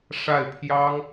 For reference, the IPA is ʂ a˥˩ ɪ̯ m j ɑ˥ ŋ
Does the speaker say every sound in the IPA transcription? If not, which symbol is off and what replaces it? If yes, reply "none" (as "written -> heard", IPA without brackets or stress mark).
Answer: m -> pʰ